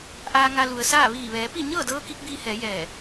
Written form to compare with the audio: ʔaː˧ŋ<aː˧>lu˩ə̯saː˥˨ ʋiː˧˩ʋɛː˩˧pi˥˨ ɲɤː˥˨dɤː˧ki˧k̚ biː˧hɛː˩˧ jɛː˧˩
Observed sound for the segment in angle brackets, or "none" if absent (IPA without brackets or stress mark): a˧